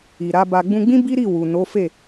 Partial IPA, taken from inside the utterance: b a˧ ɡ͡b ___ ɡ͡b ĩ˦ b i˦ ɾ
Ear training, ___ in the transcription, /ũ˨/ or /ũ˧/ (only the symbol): ũ˧